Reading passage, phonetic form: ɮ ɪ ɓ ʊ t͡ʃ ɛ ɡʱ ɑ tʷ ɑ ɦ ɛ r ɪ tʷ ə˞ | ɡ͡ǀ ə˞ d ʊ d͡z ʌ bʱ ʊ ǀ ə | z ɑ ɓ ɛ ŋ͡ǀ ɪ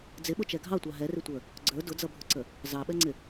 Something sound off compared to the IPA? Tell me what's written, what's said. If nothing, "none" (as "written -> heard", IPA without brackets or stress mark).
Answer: ɮ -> d͡z